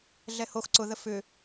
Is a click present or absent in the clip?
present